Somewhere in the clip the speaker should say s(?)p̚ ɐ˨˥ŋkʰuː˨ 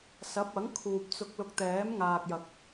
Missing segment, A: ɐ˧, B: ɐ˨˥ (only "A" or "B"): B